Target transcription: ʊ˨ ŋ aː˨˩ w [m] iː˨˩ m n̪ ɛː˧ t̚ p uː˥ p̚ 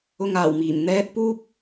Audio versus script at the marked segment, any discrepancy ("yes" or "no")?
no